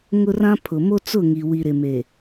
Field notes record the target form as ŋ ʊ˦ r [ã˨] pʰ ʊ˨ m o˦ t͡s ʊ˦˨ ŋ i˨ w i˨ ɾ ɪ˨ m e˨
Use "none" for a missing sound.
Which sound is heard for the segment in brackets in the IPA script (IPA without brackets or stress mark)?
ã˦